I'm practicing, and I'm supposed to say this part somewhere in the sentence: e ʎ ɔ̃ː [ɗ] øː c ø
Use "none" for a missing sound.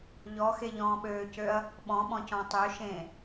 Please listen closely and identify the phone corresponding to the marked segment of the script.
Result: ɓ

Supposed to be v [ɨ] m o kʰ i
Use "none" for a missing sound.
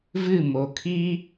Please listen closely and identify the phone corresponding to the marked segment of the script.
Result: ɨ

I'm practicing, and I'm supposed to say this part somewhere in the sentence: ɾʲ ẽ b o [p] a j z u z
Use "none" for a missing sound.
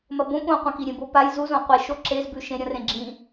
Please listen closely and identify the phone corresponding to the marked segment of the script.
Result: p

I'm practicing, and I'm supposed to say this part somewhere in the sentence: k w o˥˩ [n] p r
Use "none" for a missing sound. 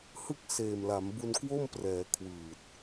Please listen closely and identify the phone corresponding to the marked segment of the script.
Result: m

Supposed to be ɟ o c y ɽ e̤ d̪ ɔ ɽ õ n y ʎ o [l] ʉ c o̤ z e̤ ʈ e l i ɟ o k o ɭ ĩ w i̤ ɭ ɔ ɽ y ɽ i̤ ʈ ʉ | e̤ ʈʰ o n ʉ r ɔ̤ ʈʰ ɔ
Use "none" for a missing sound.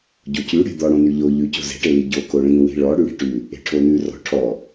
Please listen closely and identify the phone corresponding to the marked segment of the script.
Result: ʎ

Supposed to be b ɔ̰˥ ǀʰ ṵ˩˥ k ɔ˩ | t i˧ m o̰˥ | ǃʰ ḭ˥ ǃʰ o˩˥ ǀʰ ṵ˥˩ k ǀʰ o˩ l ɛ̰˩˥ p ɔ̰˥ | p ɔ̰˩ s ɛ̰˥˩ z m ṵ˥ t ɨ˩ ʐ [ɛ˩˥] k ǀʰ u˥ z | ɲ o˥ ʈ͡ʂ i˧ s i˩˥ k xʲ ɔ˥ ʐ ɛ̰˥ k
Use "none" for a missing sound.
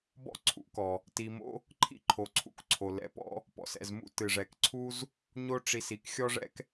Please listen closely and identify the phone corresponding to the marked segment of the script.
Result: ɛ˩˥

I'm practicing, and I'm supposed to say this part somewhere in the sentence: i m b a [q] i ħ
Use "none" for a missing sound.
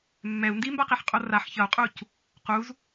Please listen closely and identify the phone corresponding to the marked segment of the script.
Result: q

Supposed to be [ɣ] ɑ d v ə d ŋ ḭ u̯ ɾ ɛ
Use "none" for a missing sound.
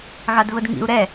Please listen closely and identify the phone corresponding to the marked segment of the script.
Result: ɣ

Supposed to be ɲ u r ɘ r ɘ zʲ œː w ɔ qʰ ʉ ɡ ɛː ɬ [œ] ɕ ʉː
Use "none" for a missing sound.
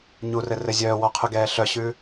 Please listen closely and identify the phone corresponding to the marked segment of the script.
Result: œ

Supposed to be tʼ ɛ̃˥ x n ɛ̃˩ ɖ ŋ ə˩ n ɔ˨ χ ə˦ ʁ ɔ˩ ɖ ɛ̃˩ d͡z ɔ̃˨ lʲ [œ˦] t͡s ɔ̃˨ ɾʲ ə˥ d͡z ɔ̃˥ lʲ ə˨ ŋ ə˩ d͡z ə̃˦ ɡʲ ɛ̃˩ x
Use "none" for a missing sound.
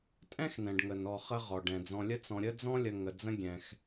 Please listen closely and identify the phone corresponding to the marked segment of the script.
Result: ə˦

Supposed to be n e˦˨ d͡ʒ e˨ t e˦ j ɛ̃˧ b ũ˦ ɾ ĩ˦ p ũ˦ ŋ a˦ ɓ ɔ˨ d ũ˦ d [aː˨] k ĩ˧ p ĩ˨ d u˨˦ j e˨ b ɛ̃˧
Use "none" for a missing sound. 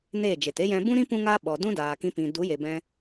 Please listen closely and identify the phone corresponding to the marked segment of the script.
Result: aː˨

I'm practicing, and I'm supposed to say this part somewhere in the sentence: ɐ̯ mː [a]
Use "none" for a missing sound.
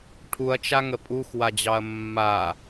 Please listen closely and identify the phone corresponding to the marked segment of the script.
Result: a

